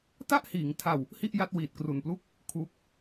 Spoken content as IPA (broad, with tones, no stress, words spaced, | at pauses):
ta˥˩ʔhiː˩˦ŋtʰa˧w | hi˥˩ʔja˦˥t̚ wiː˨˩t̚ kru˨˩nplu˥˩k̚ | kʰu˦˥k̚